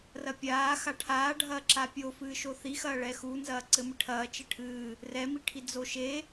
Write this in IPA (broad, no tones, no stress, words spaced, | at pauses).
rɐpʲaː xaʈʰaːɖʱɐː ǁapʲo fɨːʃoθixɐː ɭɛxunzɐː ǀɘmɨʈʰɐː t͡ʃɘʈʰɨː | rɛmiʈʰi d͡zoʃe